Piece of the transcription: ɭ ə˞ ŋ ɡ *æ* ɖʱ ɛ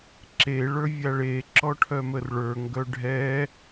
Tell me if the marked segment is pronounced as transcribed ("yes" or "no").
no